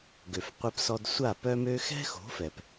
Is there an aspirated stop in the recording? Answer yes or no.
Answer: no